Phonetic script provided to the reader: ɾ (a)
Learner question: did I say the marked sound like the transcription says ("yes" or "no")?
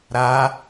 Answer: yes